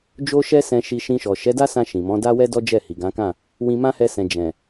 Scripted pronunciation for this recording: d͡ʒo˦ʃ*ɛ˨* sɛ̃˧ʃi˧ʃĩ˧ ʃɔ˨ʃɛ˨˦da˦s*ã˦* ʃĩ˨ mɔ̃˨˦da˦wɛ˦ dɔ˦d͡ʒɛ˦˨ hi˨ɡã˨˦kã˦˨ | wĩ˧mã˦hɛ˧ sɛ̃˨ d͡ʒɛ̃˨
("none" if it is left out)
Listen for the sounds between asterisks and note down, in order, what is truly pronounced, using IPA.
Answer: ɛ˦, ã˧

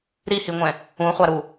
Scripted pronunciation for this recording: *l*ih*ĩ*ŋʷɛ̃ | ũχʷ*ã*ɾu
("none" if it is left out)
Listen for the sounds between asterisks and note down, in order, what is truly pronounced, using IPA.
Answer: ɾ, i, a

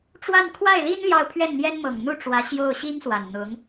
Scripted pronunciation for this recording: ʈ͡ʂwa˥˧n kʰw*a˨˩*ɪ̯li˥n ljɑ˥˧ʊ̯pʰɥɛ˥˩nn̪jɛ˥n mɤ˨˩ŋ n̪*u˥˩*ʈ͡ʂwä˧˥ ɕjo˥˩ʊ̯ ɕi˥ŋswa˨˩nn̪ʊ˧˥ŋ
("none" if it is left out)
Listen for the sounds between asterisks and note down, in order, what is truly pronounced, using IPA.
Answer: a˥˩, u˥˩

